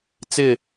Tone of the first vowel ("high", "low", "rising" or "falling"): falling